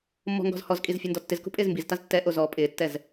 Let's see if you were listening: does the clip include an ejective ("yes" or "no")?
yes